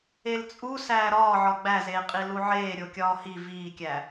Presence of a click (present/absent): absent